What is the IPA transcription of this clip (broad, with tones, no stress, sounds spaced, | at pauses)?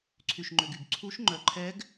ǀʰ y˧ ʃ ŋ͡ǃ ø˧ ɡ y˧ ɡ ǀʰ u˦˥ ʃ ŋ͡ǃ œ˧ ǃʰ ɛ˦˥ ɡ